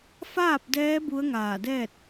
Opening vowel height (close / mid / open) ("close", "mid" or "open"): open